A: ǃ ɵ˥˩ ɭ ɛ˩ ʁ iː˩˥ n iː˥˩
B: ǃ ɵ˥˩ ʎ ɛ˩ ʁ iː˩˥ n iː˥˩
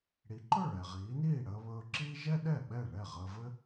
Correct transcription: A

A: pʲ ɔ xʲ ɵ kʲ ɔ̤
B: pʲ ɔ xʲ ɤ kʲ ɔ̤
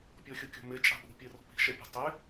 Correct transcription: B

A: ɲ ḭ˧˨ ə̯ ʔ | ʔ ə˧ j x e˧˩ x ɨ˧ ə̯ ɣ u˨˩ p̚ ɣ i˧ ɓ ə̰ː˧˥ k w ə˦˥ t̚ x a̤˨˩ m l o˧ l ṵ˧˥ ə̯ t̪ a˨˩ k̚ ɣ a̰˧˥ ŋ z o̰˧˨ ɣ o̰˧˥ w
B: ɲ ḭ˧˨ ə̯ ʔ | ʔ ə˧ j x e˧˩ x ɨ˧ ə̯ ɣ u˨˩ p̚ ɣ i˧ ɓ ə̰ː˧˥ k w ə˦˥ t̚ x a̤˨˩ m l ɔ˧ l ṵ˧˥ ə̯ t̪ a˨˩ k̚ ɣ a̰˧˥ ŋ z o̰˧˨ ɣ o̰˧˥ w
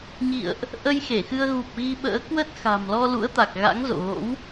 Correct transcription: B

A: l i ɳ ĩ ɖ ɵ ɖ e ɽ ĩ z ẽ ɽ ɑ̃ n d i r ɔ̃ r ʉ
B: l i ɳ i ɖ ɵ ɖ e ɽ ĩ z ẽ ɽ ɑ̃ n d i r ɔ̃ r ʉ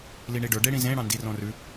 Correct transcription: B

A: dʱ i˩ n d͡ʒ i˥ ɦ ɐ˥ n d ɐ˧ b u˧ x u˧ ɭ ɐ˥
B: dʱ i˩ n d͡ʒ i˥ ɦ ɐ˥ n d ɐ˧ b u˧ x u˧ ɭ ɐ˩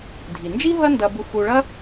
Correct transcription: A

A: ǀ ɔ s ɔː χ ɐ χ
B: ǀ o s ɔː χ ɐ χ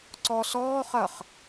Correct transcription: A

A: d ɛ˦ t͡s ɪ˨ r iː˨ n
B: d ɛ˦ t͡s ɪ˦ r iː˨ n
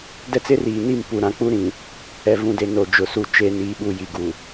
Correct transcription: B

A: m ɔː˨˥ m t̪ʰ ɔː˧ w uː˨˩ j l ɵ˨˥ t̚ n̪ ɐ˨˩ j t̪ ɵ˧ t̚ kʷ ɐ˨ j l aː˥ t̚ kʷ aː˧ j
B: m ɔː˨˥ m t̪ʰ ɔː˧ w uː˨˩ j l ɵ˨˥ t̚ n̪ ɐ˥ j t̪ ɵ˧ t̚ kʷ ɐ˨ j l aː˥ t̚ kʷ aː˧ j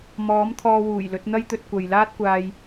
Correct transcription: B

